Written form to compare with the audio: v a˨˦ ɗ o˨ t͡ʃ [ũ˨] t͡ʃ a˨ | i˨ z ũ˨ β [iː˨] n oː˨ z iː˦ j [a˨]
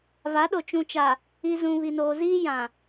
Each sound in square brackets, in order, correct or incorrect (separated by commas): correct, incorrect, incorrect